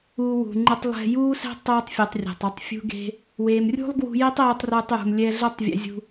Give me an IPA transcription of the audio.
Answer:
uː˧ w ṳ˨ ŋ͡ǃ ɨ˧ tˤ lˠ ɛ̤˧ j uː˦ s ɛ̤˦ tˤ eː˦ tˤ fʲ u˨ tˤ rʲ ɛ̤˨ tˤ u˦ tˤ fʲ ṳ˦ ɡ e̤˦ | w eː˨ m rʲ ṳ˦ lˠ ɡ w ṳ˧ j e˦ tˤ eː˦ tˤ r ɨː˧ tˤ j ṳ˨ m lʲ ɛ˧ ɮ ɛ˦ tˤ vʲ ḛ˧ zʲ ṳ˧

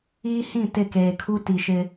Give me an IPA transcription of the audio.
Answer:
iː˦ h ĩ˦˨ t ɪ˦˨ k eː˨ kʰ u˦ t i˨ ʃ ɪ˦

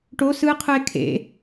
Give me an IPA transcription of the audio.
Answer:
ʈ o s ɯ qʰ ɯ e̯ kʰ ḛ

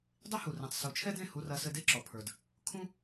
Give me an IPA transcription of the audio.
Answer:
dˤ i˦ h u˨ r ẽ˨ tˤ s u˨˦ t͡ʃʰ ɛ˦ d ẽ˦˨ h u˧ r ɐ˧ s ɘ˧ d e˦ ǁ ɔ˨ pʰ ə˞˨ d | kʰ ũ˦

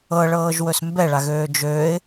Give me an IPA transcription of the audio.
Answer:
ɤ ɭ ɤː ʒ w ɵ s m b ɛ ɭ a ɣ øː d͡ʒ øː ɪ̯

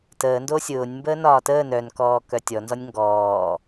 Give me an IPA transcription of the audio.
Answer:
t əː n d o sʲ ʊː nʲ m b əː n ɒː t əː n œ n k ɔː k œ tʲ ɔ n z ɔ nʲ ŋ ɡ ɔː

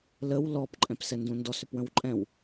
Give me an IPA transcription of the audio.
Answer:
l ə w l ɔ p ǃʼ ɛ̃ p s ɛ n d ũ n d ɔ s ʏ p w ə̃ w ǃʼ ɛ̃ w

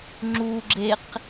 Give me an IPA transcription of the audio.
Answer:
ŋ͡ǁ u ɡ͡ǁ e q

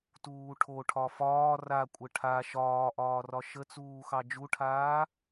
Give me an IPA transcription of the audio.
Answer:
t uː ʈʰ o ʈʰ ɒ f ɒː r a kʷʼ ə ʈʰ a ʃ ɒː ʔ ɒː r ɒ ʃ ə t͡s uː x ɑ d͡ʒ u ʈʰ aː

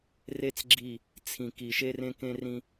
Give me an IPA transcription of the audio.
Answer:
r e˦ t͡s ɡ͡ǁ i˦˨ | t͡sʰ ĩ˨ k i˨ ʃ e˦ r ẽ˦ k ẽ˦ r ĩ˦

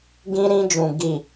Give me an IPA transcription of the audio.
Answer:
ɡ ĩ˦ ɾ ĩ˦ d͡ʒ ũ˨ ɡ i˨

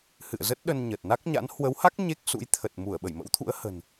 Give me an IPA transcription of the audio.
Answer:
h ɨ̰˧˨ ə̯ z ə˦˥ t̚ ɗ ə˧ n ɲ ə˨˩ t̚ n a˦˥ k̚ ɲ a̰˧˥ n h w ə˨˦ w h a˦˥ k̚ ɲ e˦˥ k̚ s ṵ˧˥ j t̪ʰ ə˨˩ t̚ m u˧˩ ə̯ ɓ ə˧˩ j m ə̰˧˥ w t̪ʰ ṵ˧˥ ə̯ h ə̤˨˩ n

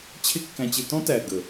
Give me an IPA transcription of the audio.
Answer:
t͡ɕʰ ɪ˦ kː æ̃˧ t͡ɕ ɪ˧ t ɔ̃˦ t æ˨ ɡ ə˨

